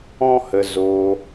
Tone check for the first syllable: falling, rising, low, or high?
high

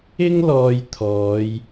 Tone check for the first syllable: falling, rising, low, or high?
high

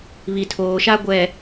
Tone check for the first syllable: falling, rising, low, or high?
low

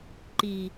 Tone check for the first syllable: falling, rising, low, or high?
low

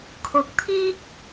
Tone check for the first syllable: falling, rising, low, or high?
rising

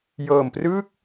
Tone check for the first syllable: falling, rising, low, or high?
low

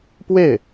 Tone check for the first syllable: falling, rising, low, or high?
falling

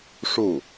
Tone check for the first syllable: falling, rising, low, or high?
falling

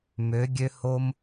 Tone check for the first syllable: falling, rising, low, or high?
rising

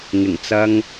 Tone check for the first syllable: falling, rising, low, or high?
low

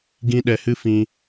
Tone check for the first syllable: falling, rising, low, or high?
high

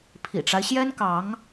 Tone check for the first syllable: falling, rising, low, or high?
low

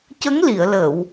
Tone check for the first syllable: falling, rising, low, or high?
rising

